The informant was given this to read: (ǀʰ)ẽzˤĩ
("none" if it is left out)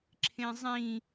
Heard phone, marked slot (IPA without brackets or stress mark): ǁʰ